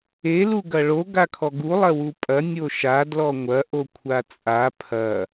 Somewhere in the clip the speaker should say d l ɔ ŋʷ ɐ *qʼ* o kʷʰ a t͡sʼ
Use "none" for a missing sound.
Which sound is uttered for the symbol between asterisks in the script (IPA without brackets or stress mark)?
ʔ